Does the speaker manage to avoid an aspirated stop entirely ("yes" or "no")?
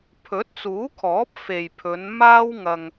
no